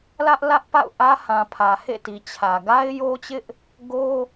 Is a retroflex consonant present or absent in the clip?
absent